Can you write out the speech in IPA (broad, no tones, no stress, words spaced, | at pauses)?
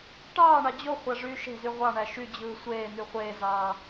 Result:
ʈɑːɳɑ d͡ʑoχʷæʐyː ʃe̤zy ʁʷɑɳæ ʃyd͡ʑɯː sʷeːn̪y χʷeːzɑː